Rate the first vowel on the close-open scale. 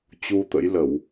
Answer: close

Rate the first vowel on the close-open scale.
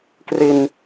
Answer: close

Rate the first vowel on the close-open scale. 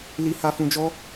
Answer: close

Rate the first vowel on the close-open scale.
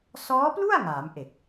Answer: mid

